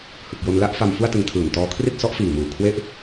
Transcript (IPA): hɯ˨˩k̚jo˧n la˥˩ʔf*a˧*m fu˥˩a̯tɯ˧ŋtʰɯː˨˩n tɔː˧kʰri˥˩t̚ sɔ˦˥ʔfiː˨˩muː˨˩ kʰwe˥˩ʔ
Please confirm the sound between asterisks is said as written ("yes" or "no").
yes